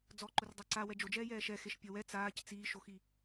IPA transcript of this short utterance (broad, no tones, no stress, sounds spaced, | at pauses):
d͡z ɔ ǃ ʊ r dˤ a ǀ a w ɛ d͡ʒ o d͡ʒ ɛː j ɛː ʃ ɛ x e ʃ pʲ ɔ w ɛ t͡s aː c t͡s iː ʃ o x i